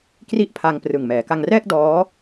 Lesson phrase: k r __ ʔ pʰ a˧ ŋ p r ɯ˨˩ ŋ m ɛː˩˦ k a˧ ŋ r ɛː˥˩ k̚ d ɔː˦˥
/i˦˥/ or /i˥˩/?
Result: i˥˩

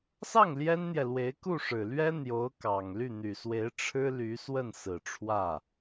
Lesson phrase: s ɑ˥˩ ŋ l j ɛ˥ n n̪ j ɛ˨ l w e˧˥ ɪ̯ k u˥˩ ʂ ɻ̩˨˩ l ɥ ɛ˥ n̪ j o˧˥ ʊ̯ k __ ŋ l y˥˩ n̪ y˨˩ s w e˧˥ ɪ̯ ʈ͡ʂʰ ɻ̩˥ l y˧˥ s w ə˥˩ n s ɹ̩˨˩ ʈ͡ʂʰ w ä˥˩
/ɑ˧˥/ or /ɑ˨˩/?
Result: ɑ˨˩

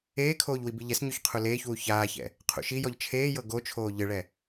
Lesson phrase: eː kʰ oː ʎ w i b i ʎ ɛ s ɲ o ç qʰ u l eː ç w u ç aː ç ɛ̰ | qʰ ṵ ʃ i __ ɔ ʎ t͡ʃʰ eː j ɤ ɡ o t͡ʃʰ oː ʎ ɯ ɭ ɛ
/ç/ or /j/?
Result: j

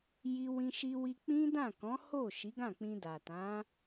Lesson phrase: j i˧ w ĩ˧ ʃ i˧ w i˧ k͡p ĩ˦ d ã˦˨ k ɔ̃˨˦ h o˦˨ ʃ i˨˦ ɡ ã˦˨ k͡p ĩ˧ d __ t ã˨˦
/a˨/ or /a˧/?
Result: a˨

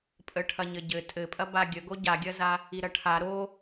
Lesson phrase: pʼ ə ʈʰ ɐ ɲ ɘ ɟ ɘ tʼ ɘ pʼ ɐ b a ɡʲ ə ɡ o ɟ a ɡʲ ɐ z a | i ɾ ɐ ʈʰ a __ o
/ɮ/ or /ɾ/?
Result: ɾ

